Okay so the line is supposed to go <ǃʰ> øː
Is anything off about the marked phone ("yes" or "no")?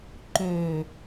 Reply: yes